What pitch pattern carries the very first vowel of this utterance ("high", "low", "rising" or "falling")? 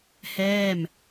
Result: falling